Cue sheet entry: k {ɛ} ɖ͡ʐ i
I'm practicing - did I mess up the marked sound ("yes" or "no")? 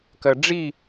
yes